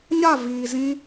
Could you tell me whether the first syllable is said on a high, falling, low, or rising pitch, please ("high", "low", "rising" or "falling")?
falling